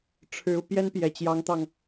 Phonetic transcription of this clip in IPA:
ʈ͡ʂʰ ɻ̩˧˥ u˧ p j ɛ˥ n p j ɛ˨˩ t͡ɕ j ɑ˧˥ ŋ t̪ ɑ˧ ŋ

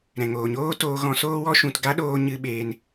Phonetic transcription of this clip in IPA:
ɾ ɛ̃˨ ŋ oː˨ ɲ oː˦ t oː˧ ɣ ɔ̃˧ s oː˦ w ɔ˦ ʃ ũ˨ t ɡ a˦ ɗ oː˧ ɲ ɨ˧ ɓ eː˧ n

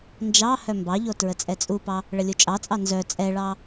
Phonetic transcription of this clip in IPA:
n d͡ʒ ɑ h œ m b ɑ ʎ o t ɹ ə t͡sʼ ɛ t͡sʼ u p ɑ | ɭ ə lʲ u t͡ʃʼ ɑ t͡sʼ ɑ n z œ t͡sʼ ɛ ɭ ɑ

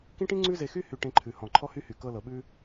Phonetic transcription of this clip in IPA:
k ĩ˦ ʈ ĩ˦ ŋ͡ǀ ʉ˦ z e˧ x y˦ h y˧ ʈ ẽ˧ ǃʰ ʉ˨ h ɔ̃˨ ǃʰ ɔ˦ h y˦ h y˨ k ɤ˧ l ɤ˨ ɓ ʉ˧

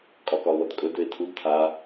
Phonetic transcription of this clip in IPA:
kʼ ɒ k ɒ ʊ̯ l ɔ t kʼ ɵ d ø ɪ̯ tʰ u d tʰ a

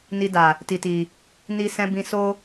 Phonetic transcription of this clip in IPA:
n i˧ d a˨ | t i˨ t i˨ | n i˧ s ɛ̃˧ b ĩ˧ s o˦

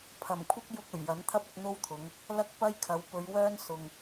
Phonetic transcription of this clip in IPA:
pʰ ɐ˨˩ m kʷʰ ɪ˥ k̚ j ʊ˧ k̚ ɵ˨˩ ɥ j ɐ˨˥ n t̪ʰ ɐ˥ p̚ ɪ˧ k̚ n̪ o˥ w t̪ʰ ʊ˨˧ ŋ | l ɐ˥ k̚ p ɐ˥ j kʰ ɐ˨˧ w p ɵ˨˧ ɥ w œː˥ n s ʊ˨ ŋ

